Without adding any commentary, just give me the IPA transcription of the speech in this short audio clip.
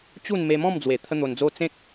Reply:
t͡ɕ u˥˧ n m e˧ m ɔ̃˥˧ m d͡z w e˨˩ t̪ʰ ə˦ n̪ o˧ n d͡z o˦ t͡s ẽ˦ k̚

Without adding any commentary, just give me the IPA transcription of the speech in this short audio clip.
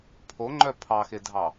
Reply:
pʰ o ŋ͡ǃ œ pʰ ɑ x e dʱ ɑ

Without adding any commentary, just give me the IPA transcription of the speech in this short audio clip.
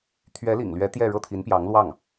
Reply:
t̪ʰ ɥ ɛ˧˥ l ḭ˨˩ ŋ l ɥ ɛ˧˥ t̪ j ɛ˥˧ ɻ ɤ˥˩ t̪ʰ i˧˥ n p j ɑ˧˥ ŋ l w ɑ˥˩ ŋ

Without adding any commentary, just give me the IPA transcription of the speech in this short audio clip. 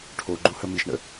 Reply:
ʈʰ o ɡ͡ǃ u h ə m i ʃ ɳ ə̰

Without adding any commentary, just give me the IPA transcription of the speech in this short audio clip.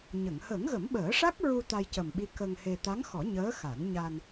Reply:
ɲ ə˨˩˨ ŋ h əː˨˩˦ ŋ ɣ ə˨˩˦ m ɓ əː˨˩˦ ʂ a˦˥ k̚ ɹ u˧ t̪ a˧ j c ə˨˩ m ɓ i˧˥ k ə˧ ŋ h e˧ t̪ a˧˥ ŋ x ɔ˨˩˦ ɲ əː˧˥ x a˨˩˦ n ɲ a˧ n

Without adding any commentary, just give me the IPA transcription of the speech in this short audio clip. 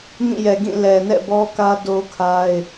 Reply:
ŋ ĩ˦˨ j ɛ˨ ɡ ĩ˦˨ l ɛ˨ n ɛ̰˦˨ b ɔ˦ k ä˦ d o˦ kʰ a˦ ɪ̯

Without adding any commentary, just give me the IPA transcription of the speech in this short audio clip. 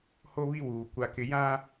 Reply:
h o˦ β i˦ w uː˨ kʷ a˦ k ɪ˦ j ã˦

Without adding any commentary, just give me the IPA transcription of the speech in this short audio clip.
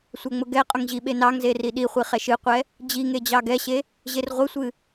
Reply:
sʷ ɛ ŋ͡m ʊ ɡ ɛ qʼ ʊ ŋ ʑ i ɓ e n ɑ ŋ z e r i ɗ i χʷ i χ ɛ ʃ ɨ qʷ ɛ | d͡ʑ i ŋ e d͡ʑ ɑ ɡ ɛ ɕ e | ʑ e r ʁʷ ɨ sʷ ɨ

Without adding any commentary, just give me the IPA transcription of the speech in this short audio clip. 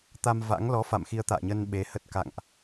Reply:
t̪ a˧ m v a̰˧˥ ŋ l ɔ˨˦ f a̰˧˨ m x i˧ ə̯ t̪ a̰ː˧˨ ɲ ə˧ n ɓ e˨˦ h ə˦˥ t̚ k a̰˧˨ ŋ ʔ

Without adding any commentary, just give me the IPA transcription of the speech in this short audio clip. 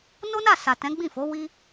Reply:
n o˦ n a˦˨ s a˨ t ɛ̃˨˦ ɡ͡b ĩ˦˨ f o˨˦ w i˦

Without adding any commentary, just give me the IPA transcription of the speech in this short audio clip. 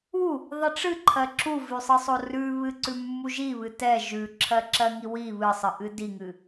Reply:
u | ðˤ i ʈ͡ʂ ɨ ǃʰ ɜ ǁ u v ʉ sˤ ɨ sˤ o r ʉ β ɨ ǀ ʉ mː u ʒ i β ɨ t ɛ ʒ ʉ ǁʰ ɜ ǁ ɜ ŋ i w i β ɨ sˤ ɨ ʔ ɨ d i ŋ ɨ

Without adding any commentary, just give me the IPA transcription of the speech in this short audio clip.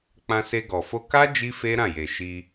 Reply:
k͡p ã˧ s e˧ ɡ ɔ˨ f o˧ k a˦ d͡ʒ i˦ f e˦ ɾ ã˦˨ j e˨ ʃ i˧

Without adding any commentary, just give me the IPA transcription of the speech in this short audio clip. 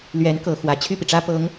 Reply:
l ɥ ɛ˧˥ n k ɤ˨˩ x w ä˧˥ t͡ɕʰ y˥˩ p i˩ ʈ͡ʂ ä˥ p ɤ˧˥ ŋ

